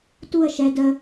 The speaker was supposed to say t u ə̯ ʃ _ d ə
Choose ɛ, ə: ɛ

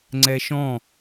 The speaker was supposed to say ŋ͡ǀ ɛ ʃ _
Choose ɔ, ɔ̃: ɔ̃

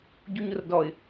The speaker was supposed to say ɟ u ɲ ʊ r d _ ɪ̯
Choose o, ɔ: ɔ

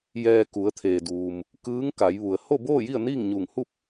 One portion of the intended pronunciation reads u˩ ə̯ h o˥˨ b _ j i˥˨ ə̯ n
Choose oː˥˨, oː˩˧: oː˥˨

